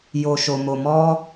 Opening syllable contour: low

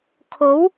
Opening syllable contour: rising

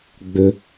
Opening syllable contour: low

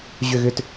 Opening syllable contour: falling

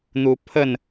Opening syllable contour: rising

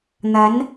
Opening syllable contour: rising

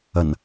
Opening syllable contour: low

